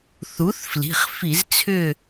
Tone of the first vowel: rising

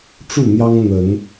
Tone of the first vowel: falling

